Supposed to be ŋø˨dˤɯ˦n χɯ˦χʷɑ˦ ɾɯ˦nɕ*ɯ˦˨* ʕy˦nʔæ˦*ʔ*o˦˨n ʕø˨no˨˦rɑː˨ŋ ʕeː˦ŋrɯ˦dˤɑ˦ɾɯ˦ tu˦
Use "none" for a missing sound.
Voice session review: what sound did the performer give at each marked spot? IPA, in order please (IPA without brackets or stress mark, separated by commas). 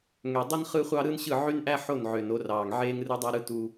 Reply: ɯ˦˨, ħ